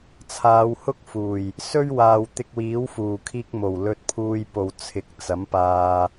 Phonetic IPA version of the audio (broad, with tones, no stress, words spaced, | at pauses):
t͡sʰaː˨˧whʊ˥k̚fuː˨˩j | sɵ˥ɥwaː˨wt̪ɪ˧k̚wiː˨˥w fuː˨˩ kʰiː˧k̚mo˨˩w lɵ˧t̚pʰuː˧jpo˨wt͡sʰɪ˨˥k̚ t͡sɐ˨˥mpaː˧